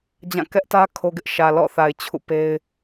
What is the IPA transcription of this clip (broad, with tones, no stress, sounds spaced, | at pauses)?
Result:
d͡ʑ ã˦˨ k ɛ˦ ʔ t ä˦ kʰ o˦ ɡ ɪ˦ ʔ ʃ ä˨ l ɔ̰˦˨ θ a˨ ɪ̯ t͡ɕʰ ṵ˦˨ p e˦ ɪ̯